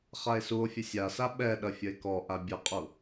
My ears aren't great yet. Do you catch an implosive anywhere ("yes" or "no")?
yes